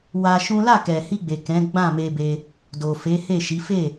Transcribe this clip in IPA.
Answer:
w a˧ ʃ ũ˦ l a˦˨ k ɛ˨ h i˧ ɡ͡b e˨ k ɛ̃˨˦ ɡ͡b ã˦˨ m e˧ b e˧ | d o˨ f e˨˦ h e˦˨ ʃ i˨˦ f e˦˨

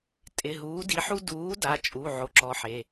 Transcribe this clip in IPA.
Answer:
tʼ ɪ˩˧˩ ɦ uː˨˥ d i˨˥ ħ u˥ d uː˨˥ d a˩˧˩ t͡ʃʼ u˩˧˩ ʕ o˨˥ ǁ ɔ˨˥ ħ e˩˧˩

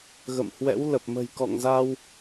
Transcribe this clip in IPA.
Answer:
ɣ ə̰˧˨ m h w ɛ̰˧˥ w l ə˨˩ p̚ m ə̤˨˩ j k ɔ̰˧˨ ŋ z a˧ w

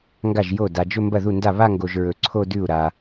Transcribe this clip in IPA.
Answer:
ŋ ɡ a˥˩ ʒ j o˥˩ d a˨ d͡ʒ ɵ˥˧ m b ɐ˥˩ ð u˥˩ n d a˥˩ β a˥˧ ŋ ɡ o˨ ʒ ɹ ɵ˨ ǀʰ o˥˧ d ʉ˥˩ u̯ ɾ a˨

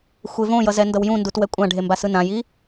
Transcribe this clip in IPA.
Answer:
xʷ e v õ j ʌ z ɛ n d ʌ w j ũ n d u t w ɛ kʷʼ ã ɖʱ e m b a s ɯ n ã j i

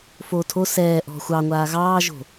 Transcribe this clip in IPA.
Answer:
f o tʰ o s ɛː ʔ ɔ̤ xʷ ɑ ŋʷ aː ɣ ɑː ʒ o̤

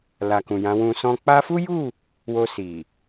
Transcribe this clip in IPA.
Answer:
l a˨ k ũ˨ j ã˨˦ w ũ˧ s ɔ̃˧ k͡p a˧ f u˦ j u˦˨ | w o˧ s i˨

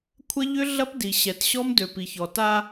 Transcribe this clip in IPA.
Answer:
kʷʰ ɐ˦ ʎ ʏ˦ ɮ ɐ˦ p d i˨ ɕ ɛ˨ t ɕ ɔ˦ m d ø˨ p i˨ ç ɔ˨ t a˦

